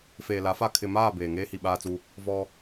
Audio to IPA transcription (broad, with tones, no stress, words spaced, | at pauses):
feː˨la˨˦fa˦˨ kʰɪ˨maː˦˨ beː˨ ŋeː˦hi˨ɓaː˦t͡su˦ | vɔ˦